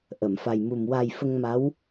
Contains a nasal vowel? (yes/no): no